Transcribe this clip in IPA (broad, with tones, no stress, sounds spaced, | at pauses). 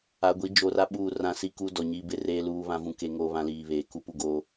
a˨ ɡʷ i˨˦ d͡ʒ o˨ r a˦ ɓ uː˦˨ r ã˦ s i˦ k u˦ d ɔ˨ ɲ iː˦ b ɪ˦ r eː˦ l uː˦ β ã˦ v ũ˦ k e˦ ŋ oː˦ β ã˦ l iː˨ β eː˨ k u˦ p u˦ ɡ oː˦